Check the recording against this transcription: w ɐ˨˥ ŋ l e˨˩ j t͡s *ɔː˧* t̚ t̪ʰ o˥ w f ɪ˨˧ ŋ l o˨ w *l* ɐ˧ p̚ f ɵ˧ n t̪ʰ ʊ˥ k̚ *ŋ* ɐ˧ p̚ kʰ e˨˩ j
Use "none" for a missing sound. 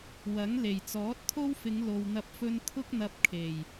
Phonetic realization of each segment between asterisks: ɔː˨˥, n̪, n̪

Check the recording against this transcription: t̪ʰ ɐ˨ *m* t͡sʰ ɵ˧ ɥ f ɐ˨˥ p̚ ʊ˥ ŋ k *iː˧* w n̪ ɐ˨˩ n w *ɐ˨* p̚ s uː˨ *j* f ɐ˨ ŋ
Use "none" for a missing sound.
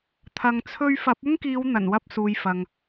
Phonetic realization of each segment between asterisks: ŋ, iː˨˧, ɐ˧, j

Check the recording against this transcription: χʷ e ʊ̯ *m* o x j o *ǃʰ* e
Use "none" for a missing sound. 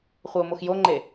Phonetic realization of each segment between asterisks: m, ŋ͡ǃ

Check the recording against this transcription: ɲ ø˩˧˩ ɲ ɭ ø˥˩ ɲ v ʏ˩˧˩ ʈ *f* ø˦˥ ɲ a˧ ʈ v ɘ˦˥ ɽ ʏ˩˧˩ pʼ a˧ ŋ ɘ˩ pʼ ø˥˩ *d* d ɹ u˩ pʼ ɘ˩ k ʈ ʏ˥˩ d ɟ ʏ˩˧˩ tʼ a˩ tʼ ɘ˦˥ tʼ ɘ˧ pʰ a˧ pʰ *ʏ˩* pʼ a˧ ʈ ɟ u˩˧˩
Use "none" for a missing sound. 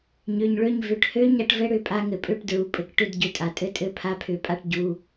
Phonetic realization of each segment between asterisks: h, ʈ, ʏ˨˩˦

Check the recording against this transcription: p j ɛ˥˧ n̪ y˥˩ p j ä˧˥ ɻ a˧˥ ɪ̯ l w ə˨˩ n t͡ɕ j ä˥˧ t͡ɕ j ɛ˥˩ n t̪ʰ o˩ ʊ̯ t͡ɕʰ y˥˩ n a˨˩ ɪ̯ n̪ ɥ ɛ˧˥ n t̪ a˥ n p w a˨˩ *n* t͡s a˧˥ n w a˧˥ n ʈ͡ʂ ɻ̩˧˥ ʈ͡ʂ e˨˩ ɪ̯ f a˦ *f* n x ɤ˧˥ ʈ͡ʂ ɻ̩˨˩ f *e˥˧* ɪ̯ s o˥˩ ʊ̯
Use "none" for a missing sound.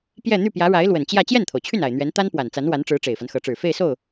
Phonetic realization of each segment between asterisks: n, none, e˥˧

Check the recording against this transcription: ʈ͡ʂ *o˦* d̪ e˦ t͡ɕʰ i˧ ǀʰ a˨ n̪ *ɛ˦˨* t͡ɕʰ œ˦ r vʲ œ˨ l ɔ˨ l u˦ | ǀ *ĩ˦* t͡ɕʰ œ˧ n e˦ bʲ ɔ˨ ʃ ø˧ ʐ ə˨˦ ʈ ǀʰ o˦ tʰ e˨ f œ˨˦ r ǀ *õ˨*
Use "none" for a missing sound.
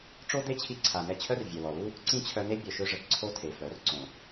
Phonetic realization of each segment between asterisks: o˦, ɛ˧, ĩ˦, õ˨

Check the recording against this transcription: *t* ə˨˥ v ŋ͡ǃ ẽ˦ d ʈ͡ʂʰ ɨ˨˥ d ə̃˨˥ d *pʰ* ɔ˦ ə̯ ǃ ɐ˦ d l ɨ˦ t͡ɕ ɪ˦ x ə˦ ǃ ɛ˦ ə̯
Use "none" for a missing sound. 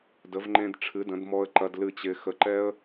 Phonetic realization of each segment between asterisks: d, m

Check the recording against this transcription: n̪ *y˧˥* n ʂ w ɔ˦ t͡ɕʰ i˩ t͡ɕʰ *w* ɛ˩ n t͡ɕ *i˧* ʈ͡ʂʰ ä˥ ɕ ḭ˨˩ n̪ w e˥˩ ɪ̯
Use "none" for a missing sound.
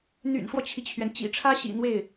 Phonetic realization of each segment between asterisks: y̰˨˩, ɥ, ḭ˨˩

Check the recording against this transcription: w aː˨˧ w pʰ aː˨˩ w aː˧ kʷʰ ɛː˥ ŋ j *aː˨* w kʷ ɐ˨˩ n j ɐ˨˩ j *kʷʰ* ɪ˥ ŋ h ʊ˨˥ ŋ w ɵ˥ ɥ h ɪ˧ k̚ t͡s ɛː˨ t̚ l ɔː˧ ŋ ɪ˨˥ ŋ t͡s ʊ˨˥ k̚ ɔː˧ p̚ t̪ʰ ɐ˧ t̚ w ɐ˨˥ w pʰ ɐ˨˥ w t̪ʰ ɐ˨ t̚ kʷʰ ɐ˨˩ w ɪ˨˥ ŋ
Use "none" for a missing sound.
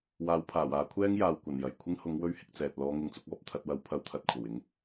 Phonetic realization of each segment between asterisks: aː˨, kʷʰ

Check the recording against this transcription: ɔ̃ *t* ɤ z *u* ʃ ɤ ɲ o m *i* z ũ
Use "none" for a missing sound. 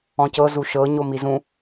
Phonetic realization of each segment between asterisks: c, u, i

